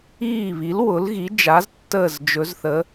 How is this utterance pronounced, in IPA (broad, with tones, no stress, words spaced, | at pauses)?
iː˧˩βi˩˧l wʊ˩˧lɣi˩˧d͡ʒa˩˧z tːəː˧˩zd͡ʒɵ˩˧zθəː˩˧